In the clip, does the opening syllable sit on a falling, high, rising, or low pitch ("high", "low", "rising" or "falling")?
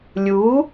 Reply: rising